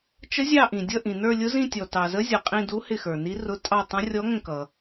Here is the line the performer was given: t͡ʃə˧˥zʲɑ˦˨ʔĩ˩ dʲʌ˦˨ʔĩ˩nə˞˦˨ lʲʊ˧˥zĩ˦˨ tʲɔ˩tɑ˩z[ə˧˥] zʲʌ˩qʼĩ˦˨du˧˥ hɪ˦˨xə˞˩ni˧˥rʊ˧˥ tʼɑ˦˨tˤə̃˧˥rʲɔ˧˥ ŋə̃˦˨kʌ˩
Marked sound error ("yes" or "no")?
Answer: no